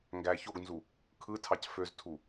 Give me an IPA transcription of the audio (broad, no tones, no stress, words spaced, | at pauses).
ŋɡæ çoɡnzu | kʰɯtʰɑc føztʰu